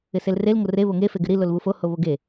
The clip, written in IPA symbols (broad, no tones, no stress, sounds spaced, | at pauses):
ɪ s e l r e l ŋ o r e β o ŋ e f e ɡ ɪ ɾ i l o l β u f o h o β o ɡ e